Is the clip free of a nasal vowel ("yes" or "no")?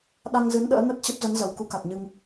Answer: yes